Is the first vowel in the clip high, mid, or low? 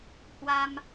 low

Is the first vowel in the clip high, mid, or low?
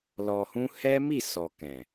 mid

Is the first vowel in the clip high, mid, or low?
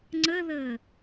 mid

